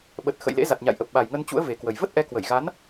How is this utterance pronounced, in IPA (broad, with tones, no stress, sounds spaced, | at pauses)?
ɓ ə˨˩ t̚ x ə̰˧˨ j l ḛ˧˥ z a˨˩ t̚ ɲ a̰˧˨ j ʔ ə˨˩ p̚ ɓ a˨˩ j ŋ ə˧ n t͡ɕ ṵ˧˥ ə̯ v e˨˩ k w ə˨˩ j v ə˦˥ t̚ ʔ ɛ˨˦ k w ə˧˩ j ɣ a˨˦ n